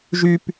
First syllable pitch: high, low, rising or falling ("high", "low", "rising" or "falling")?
high